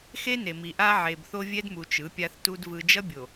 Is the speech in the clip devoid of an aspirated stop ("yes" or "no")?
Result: yes